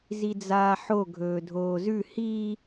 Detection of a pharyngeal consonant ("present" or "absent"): present